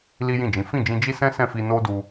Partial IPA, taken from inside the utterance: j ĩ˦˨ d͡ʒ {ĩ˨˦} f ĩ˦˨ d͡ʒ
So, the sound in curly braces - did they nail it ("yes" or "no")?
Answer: yes